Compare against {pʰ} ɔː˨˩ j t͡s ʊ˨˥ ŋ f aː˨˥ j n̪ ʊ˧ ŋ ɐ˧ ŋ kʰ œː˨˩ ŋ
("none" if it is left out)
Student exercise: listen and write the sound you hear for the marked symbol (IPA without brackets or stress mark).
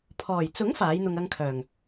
pʰ